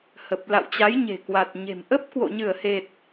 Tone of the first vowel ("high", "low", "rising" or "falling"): low